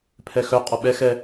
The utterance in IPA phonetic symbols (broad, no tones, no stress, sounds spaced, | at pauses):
pʰ ɛ x œ qʼ ɔ ɓ ɛ x ɛ